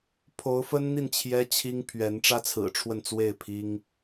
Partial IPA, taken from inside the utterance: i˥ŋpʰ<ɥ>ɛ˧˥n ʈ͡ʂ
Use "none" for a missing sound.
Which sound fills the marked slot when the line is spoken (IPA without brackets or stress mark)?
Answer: ɥ